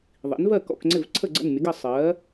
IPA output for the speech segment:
ðˤ ḭ˩˥ n v ɜ˥˩ k ɔ̰˥˩ k ŋ͡ǀ ɪ˥˩ v ǀʰ ə˥˩ ɡ͡ǀ ə̰˥˩ n mʲ ə˩˥ ɡ ə˥˩ sˤ ɜ˩˥

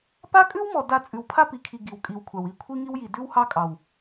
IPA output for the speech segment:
p a˦ kʼ ʉ˦ w m ɔ˨ d a˨ t͡sʼ ʉ˨ w pʰ a˦ p i˨ kʰ i˨ ɡ i˨ w kʼ i˨ w kʷʰ a˨ w i˦˨ kʷʰ i˦ ŋ i˦ w j i˨ d ʉ˦ w h ɑ˦ kʼ ɑ˨ w

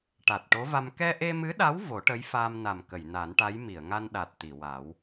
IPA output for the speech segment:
ʈ a˨˩ t̚ ʈ o˧˥ v a˧ m k ɛ˧ ʔ e˧ m ɨ˧˥ ɗ a˧˥ w v o˨˩˦ ʈ ə˧˥ j f aː˧ m n a˨˩ m k ə˨˩˨ j n a˨˩˦ n ʈ a˧˥ j m i˨˩˨ ə̯ ŋ a˧ n ɗ a˨˩ t̚ t̪ i˨˩˨ w a˨˩˦ w

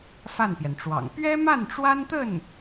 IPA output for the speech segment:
f a˥˩ n p j ɛ˩ n ʈ͡ʂ w ɑ̰˨˩ ŋ p ɥ ɛ˥ m a˥˩ n ʈ͡ʂ w a˥ n t̪ ə˥˩ n

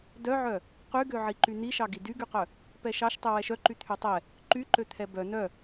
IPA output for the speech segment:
d œ ʕ œ | q y ɡ ø ʕ i ǃ y n̪ i ʃ ɑ ɡ i d y ɡ y q œ | p ɛ ʃ ɑ ʃ tˤ i w ɛ ʃ œ ǃ y t̪ʰ y tˤ ɛ | ǃ y ǃ ø t̪ʰ ɛ b œ n œ

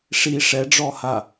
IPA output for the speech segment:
ʂ i ʂ ɛ ɖ͡ʐ ɔ h a

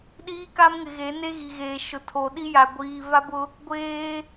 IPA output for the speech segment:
ɗ iː˦ k a˦ m ŋ ɪ˨ ɣ e˨˦ n e˦ ɣ i˨ ɣ eː˨ ʃ ʊ˨ tʰ o˨ ɗ i˦ j a˨ ɡʷ iː˨ v a˦ b ʊ˦ | ɡʷ eː˦

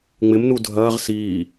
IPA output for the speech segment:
ŋ͡m ɪ m n u dʱ ɐː ʁ s iː

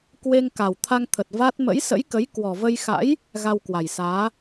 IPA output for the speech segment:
k w e˧ ŋ k a˨˩ w t̪ʰ a˧ ŋ t̪ʰ ə˨˩ t̚ v a˦˥ t̚ m ə̰˧˥ j s ə̰˧˥ j k ə˨˦ j k w ɔ˨˩ v ə˧ j x a̰˧˥ j | ɣ a˧ w k w a˨˩ j s aː˨˦

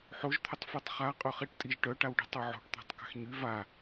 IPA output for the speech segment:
ħ o ʒ t̪ʰ ə tˤ f ɛ tˤ χ a qʼ ø χ i ʈ tʼ i ʒ ʈ œ ʈ a w ɖ i̤ tˤ ø ʕ o̤ ʈ t̪ a̤ tˤ k a̤ x ɲ y v a

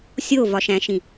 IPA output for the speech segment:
sʲ o v ɒ ʃ æ̃ ʃ ĩ

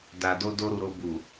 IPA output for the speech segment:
d a˨ d o˧ d o˧ ɾ u˨ ɾ o˧ b u˨

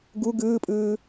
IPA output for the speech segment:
ɡ u ɡ ɯː pʼ ɯː

